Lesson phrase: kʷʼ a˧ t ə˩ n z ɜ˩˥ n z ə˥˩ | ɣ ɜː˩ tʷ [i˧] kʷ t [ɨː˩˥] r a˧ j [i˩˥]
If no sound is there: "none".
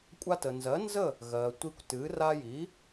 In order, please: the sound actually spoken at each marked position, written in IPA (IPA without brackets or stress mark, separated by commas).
i˧, ɨː˩˥, i˩˥